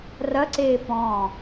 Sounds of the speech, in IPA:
rɐǀeː pɔ̃ː

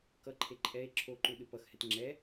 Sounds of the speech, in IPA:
kʌǃʰe ǃʼɛe̯ ǁʰoǃu ɗɯpʌxhɛt ŋ͡ǁɛ

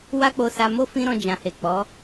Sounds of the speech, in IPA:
wa˦k͡po˧sa˧mo˦ fĩ˦ɾɔ̃˧d͡ʒã˨he˨ k͡pɔ˨˦

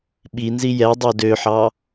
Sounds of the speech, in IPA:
ɓinzi jɛdˤo døħɑ

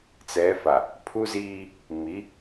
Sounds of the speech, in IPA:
t͡sɛ˨˦fa˨ | pʰu˦ziː˦ | mi˨˦

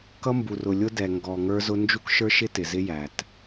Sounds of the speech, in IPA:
kʌ˦mbu˨rʊ˨ lʲʊ˦ dɛ˨ŋɡɔ˨ŋə˞˦zʊ˦ nd͡ʒu˦kʃə˞˦ʃɪ˦ tɪ˨zɪ˦jæ˨t

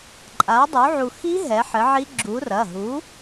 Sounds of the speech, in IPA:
ǃʼa˨˥ dˤu˨˥ʕu˧ xi˦˥ ɦɛ˨˥ħɘ˨˥ʕi˦˥ ɡ͡ǁu˨˥ rɐ˩˧˩ɦu˨˥

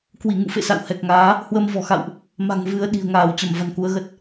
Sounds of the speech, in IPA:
kwi˧˩ŋṵ˧˨fḛ˧˨ sa̰˧˨whɛ˨˩k̚ŋaː˨˦ | hwə˧mvɔ̤˨˩xa̰˧˨wʔ | ma̤˨˩ŋvɨ˨˦ə̯ɗi̤˨˩ə̯ŋaː˧˩w t͡ɕə˧˩mva̤˨˩nku˨˦ə̯ ɣə˦˥t̚

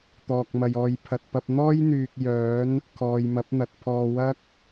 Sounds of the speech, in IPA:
t̪ɔː˨k̚mɐ˨jɔː˨j pʰɐ˨t̚pɐ˧p̚n̪ɔː˥jn̪yː˨k̚ jœː˨˥n | kʰɔː˨jmɐ˨˥p̚n̪ɐ˨t̚ pʰɔː˧wɐ˥k̚

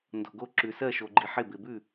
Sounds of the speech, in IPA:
ndo̤˨ɡo˦˨ ǁʉ˨sɜ˦˨ʃo˨ɡ͡ǃi˨ ħɪ˦˨ bɪ˨bʉ˦˨

